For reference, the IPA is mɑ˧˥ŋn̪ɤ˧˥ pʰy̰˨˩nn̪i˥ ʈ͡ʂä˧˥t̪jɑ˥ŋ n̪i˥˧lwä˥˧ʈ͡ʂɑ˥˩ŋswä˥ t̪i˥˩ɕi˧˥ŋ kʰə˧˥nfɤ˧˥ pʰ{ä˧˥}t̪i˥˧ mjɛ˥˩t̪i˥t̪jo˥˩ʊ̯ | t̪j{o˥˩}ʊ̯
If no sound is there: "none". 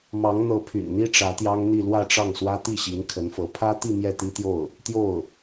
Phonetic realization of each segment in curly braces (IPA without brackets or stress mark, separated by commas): ä˥, o˥˩